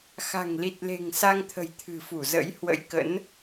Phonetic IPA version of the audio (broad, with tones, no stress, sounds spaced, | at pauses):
x a̤˨˩ ŋ l i˨˩ t̚ l e̤˨˩ ŋ s a˧ ŋ t̪ʰ ə̤˨˩ j t̪ʰ ɨ̤˨˩ f u˧˩ z ə̰˧˥ j h w ə̰˧˥ j k ə̰˧˥ n